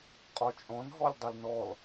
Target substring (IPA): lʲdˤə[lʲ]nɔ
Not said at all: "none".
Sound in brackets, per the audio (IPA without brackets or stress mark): l